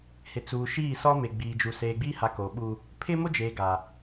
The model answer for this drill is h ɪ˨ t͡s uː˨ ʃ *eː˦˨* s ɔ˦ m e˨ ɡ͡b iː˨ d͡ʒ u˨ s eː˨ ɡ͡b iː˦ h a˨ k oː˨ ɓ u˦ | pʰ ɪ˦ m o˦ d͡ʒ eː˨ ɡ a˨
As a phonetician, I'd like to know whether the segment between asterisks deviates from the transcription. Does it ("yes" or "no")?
yes